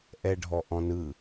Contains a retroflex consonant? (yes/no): yes